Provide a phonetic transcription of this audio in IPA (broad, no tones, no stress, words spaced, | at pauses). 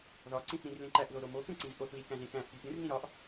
ðɒǀĩθɾĩr lẽǃæʔðo ɾomokũǀĩz ʔoθlikæ̃zẽ kæ̃ʔpʲo pʲũrnĩ ɾɒʔ